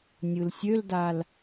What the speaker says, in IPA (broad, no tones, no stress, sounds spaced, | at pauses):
nʲ ɯ l sʲ ø l d a l